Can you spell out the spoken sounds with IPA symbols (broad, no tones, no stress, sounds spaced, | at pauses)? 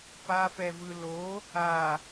p a f ɛ v ɯ l o | a